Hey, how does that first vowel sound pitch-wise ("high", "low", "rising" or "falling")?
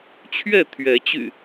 falling